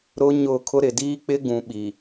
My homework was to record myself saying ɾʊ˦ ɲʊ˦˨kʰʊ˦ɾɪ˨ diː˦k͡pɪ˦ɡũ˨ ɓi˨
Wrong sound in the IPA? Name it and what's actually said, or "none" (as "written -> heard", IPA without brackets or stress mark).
none